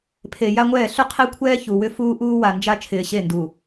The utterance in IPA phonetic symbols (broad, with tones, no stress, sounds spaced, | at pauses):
pʰ e˨ j a˦ ŋʷ ɛː˦˨ ɬ ʏ˦ qʰ e˦ kʷʰ ɛː˦ ç u˨ w ʏ˦ f uː˦ ʔ uː˦ w a˨ n d͡ʒ a˦ t͡ʃʰ ɪː˨ ɕ e˦˨ n d u˨